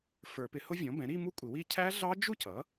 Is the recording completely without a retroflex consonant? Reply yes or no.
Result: yes